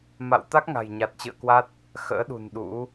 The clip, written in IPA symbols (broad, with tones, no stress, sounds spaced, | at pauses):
m a̰˧˨ w t̪ a˦˥ k̚ ŋ a̤˨˩ j ɲ a˨˩ t̚ t͡ɕ ɨ̰˧˨ ə̯ k w a˦˥ t̚ | x ə̰ː˧˥ ɗ ṳ˨˩ n ɗ ṵ˧˥